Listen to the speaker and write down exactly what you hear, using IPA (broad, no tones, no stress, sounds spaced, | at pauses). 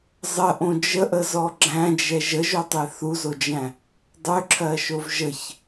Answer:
zˤ ə ʔ õ d͡ʒ ə ʔ ə z ɔ ɡ͡ǁ æ̃ d͡ʒ ɛ ʒ ə ʒ o tˤ e θ u z o d͡ʒ æ̃ | dˤ ø ǁʰ ɜ ʃ o v ʒ ə ç